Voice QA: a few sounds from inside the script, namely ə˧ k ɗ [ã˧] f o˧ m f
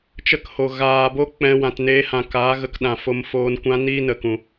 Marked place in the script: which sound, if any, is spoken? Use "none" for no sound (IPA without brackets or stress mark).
ã˨